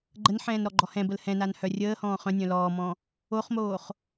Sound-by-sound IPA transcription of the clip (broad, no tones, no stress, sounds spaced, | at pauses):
ɡ͡ǃ ə n ħ ɛ̃ː n ɾ ɔ ɡ͡ǃ ɔ h ɛ̃ b ə l h ɛ̃ n a n h œ rʲ əː h ɔ̃ː χ œ̃ nʲ œ̃ l ɔː m ɔ̃ | o χ m oː χ